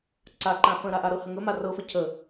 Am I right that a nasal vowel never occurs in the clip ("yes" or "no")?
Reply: no